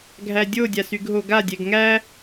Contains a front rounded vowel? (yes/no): yes